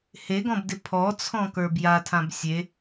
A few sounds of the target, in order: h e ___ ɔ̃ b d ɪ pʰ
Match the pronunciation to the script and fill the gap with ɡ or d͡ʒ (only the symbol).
ɡ